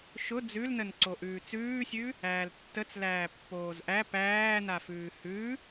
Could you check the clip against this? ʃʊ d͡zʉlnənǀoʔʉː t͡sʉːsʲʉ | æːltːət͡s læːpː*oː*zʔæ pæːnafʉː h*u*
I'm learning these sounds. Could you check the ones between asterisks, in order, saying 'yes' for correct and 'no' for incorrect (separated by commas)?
yes, no